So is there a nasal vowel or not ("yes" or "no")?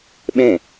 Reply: yes